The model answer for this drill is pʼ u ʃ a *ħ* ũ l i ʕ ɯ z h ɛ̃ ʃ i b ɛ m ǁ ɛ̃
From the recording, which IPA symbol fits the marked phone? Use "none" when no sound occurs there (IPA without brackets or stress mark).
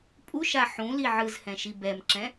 ħ